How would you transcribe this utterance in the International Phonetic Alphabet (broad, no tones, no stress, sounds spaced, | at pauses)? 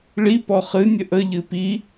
ɭ i p ɔ χ ɨ nʲ ə ʔ ə ʎ ɨ p i